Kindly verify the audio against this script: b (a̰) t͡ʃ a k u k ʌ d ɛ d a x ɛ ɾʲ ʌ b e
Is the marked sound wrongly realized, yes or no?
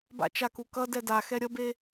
no